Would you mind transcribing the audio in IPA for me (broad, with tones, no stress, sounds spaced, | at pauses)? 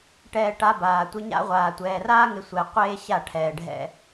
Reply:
ʈ ɛː˨ ʈ a˧ b aː˨ tʷ ɪ˧ ɲ a̰˦ ʁʷ aː˨ tʷ ɛː˨ r aː˦ ŋ ɪ˧ sʷ ɛ˧ qʷ eː˦ ɕ a˦˨ ʈʰ ɛː˨ ɖʱ ɛ̰˦